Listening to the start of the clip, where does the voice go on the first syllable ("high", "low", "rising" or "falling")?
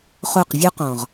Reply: falling